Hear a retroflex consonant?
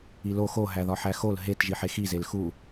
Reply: no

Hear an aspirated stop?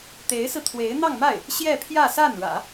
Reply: yes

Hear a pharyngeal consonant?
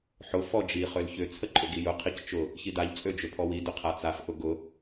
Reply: yes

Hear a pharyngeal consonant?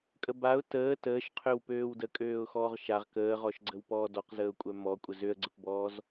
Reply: no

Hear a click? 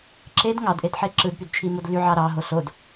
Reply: yes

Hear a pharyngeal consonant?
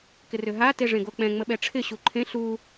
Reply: no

